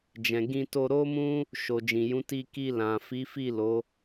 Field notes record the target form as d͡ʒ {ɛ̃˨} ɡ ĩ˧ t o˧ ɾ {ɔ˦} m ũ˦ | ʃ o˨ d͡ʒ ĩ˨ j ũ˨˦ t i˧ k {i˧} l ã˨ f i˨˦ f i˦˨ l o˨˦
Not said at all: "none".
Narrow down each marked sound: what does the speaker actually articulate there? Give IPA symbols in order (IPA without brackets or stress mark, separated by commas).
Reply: ɛ̃˨, o˦, i˧